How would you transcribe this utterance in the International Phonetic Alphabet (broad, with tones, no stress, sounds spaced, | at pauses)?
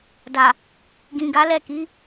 d a˨ | ɡ ĩ˨ ɡ a˨˦ l ɛ˦˨ k i˨˦